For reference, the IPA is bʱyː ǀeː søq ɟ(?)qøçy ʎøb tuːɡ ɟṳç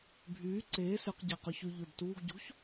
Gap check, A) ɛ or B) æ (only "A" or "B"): B